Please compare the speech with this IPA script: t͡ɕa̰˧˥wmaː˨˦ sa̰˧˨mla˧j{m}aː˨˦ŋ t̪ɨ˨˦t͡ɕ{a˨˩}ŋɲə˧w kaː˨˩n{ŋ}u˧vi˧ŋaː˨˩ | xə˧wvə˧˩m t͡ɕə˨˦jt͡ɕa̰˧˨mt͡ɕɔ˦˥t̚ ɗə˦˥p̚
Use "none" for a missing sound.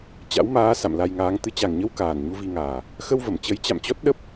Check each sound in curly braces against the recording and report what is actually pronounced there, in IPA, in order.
ŋ, a˨˩, ɲ

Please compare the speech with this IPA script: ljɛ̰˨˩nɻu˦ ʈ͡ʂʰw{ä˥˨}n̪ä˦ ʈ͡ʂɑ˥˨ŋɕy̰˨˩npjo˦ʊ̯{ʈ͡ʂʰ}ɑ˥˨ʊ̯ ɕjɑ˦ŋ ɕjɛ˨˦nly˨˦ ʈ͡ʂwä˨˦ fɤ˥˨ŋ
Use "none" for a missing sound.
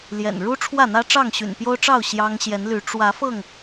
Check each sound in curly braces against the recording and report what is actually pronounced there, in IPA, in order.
ä˥˨, ʈ͡ʂ

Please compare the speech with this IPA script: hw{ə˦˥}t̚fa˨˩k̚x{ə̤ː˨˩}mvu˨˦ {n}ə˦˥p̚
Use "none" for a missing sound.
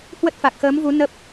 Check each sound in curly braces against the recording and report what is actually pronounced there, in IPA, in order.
ə˦˥, əː˨˦, n

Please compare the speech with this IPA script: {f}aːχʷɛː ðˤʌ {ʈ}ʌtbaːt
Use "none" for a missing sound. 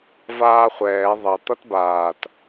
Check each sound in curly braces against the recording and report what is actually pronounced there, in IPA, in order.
v, t̪

